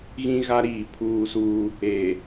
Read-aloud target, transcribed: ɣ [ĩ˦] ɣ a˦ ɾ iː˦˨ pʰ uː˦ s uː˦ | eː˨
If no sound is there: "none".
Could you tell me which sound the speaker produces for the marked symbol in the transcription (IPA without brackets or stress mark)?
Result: ĩ˦